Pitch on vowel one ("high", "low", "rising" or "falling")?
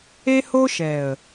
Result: high